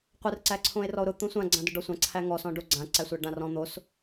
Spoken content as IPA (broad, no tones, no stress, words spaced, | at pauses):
qʷɘr ǀæǀʰõe̯rɔo̯ɾʊ t̪õsʷã ɡ͡ǀãdʊɖɔsʷã ǀʰæŋɔs ɔ̃ɖoɡ͡ǀã ǀæsʷæɖãrɔ̃ n̪os